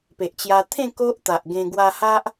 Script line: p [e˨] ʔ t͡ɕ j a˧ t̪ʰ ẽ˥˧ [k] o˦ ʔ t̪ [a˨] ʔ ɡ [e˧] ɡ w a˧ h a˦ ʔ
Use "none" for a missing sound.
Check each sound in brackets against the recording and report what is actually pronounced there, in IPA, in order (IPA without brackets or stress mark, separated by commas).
e˨, k, a˨, ẽ˧